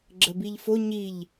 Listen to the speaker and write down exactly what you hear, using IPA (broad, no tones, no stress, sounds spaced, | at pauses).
ɡ͡ǁ ə b i ʎ f o ɲ i ʎ